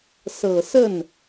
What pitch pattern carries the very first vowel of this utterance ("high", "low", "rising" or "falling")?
low